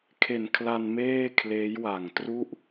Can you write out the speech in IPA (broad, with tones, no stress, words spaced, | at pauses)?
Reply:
kʰe˨˩nkʰla˧nmeː˥˩ kʰleː˦˥jwa˨˩ŋ tru˥˩ʔ